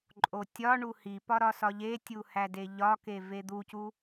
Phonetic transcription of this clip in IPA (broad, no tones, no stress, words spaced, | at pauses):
ǃʼotʲɒɳu hipɒ ɾɒsɒʎetʲu hædeʎɒke ved̪ucu